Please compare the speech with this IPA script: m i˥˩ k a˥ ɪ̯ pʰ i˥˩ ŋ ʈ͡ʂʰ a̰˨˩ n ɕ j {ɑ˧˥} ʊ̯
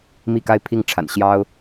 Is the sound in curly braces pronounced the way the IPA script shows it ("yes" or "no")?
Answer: no